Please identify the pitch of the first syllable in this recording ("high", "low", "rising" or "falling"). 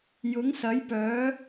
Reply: rising